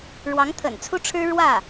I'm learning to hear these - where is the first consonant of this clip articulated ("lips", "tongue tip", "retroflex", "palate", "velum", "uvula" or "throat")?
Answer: retroflex